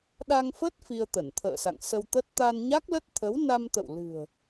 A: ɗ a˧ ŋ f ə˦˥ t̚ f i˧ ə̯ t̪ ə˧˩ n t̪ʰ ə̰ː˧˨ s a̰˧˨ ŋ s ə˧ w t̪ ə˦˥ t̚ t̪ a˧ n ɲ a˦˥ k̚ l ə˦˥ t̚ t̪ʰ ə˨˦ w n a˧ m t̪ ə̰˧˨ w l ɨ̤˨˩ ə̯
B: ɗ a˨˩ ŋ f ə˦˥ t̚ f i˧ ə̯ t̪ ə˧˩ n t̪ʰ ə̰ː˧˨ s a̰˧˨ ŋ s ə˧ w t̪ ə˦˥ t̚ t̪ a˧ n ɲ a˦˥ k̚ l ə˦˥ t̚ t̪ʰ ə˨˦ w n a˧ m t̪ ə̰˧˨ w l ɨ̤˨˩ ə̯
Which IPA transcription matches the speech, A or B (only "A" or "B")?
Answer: A